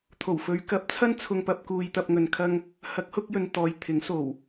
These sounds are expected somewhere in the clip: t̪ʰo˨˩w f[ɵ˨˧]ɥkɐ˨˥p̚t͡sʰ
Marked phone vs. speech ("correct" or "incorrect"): correct